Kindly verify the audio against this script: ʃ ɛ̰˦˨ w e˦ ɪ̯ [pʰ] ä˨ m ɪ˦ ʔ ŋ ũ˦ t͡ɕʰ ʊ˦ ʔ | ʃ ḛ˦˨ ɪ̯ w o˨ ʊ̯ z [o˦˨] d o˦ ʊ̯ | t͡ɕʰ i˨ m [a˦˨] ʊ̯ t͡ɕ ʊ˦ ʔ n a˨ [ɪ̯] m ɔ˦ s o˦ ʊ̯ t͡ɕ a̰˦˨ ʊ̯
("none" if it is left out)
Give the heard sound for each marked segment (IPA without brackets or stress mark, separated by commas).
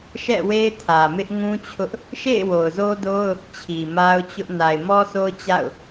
tʰ, o˦, a˦, ɪ̯